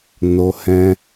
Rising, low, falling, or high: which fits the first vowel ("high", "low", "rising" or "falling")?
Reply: high